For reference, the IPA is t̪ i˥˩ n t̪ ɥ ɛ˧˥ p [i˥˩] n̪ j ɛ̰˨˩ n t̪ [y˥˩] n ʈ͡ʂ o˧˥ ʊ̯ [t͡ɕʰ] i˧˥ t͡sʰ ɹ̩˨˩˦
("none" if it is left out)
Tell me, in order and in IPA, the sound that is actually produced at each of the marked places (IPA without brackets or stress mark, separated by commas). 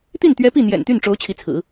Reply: i˥˩, y˥˩, t͡ɕʰ